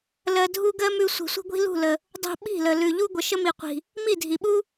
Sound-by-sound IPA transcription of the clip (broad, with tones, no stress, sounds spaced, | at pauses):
l ɜ˦ dʱ u˦ ɡ ɜ˦ m ʉ˧ sʷ i̤˨ sʷ i̤˧ ɡʷ i̤˦ l ṳ˦˨ l ə˨ | dˤ ṳ˧ ɓ i̤˦˨ l ə˨ l ʉ˨ ʎ u˦ ɡʷ ə˨ ʃ ə˦ m i˨ qʷ i̤˨ | m i˦˨ dʱ i˨ ɓ u˦